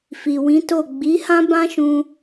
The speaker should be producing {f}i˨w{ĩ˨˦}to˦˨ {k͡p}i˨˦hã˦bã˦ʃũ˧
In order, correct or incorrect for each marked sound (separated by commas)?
correct, correct, incorrect